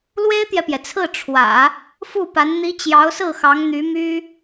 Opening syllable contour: high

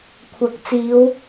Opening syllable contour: low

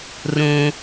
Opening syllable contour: low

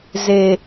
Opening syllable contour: low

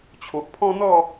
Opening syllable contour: low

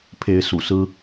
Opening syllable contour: rising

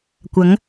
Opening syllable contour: rising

